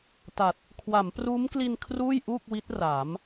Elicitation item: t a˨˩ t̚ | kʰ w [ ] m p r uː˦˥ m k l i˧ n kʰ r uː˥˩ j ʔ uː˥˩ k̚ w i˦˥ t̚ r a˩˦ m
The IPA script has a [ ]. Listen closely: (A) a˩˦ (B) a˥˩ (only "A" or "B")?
A